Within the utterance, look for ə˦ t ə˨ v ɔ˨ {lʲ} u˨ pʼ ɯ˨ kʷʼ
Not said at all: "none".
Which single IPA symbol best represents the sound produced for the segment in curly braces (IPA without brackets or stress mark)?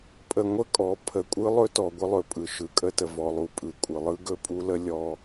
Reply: lˠ